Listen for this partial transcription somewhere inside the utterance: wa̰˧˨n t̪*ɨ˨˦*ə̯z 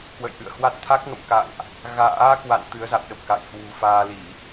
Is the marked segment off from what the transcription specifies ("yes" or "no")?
no